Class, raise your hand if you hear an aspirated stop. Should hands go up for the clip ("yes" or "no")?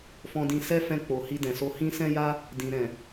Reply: no